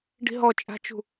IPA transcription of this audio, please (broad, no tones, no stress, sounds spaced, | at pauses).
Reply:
ɖ i̤ ɦ ɔ t͡ʃʼ a̤ t͡ʃ ṳ